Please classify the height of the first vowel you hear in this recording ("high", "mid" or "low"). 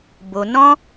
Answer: mid